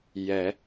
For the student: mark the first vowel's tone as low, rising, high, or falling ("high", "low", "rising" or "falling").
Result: rising